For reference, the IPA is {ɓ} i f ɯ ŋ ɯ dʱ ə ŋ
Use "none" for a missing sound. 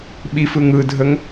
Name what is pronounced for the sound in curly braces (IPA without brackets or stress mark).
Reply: ɓ